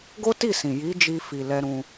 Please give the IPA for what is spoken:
ɡ o˦ t i˦˨ s ĩ˨ j i˨˦ d͡ʒ i˧ f i˨ l ɛ˧ ɾ ũ˧

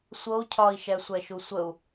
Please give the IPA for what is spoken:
sʷ ɤ u̯ cʰ ɒ i̯ ʃ ɛ sʷ ɛ ʃ u sʷ ə u̯

